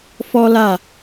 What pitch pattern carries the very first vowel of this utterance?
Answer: high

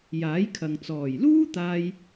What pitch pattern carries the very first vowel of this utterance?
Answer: rising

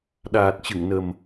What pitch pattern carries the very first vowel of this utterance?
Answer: low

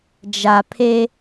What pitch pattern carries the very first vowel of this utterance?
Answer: low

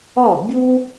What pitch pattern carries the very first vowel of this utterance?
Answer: falling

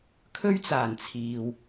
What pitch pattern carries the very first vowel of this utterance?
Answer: high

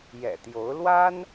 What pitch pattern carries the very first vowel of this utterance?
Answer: low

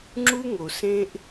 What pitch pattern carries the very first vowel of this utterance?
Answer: high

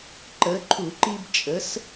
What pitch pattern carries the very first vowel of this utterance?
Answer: rising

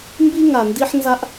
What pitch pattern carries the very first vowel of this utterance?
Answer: high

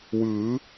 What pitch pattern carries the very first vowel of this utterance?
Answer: rising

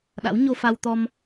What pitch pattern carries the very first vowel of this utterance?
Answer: rising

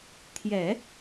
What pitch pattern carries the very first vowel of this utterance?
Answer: low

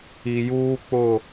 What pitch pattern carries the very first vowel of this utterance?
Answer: low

